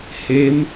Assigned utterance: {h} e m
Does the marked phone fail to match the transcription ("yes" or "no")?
no